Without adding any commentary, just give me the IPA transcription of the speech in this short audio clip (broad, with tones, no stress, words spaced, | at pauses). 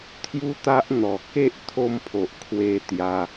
t̪ʰju˦t̪a˦ʔ n̪ɔ˨˩ke˦ʔ t̪ʰo˧mpʰo˨ʔ kʰwe˧t̪ja˧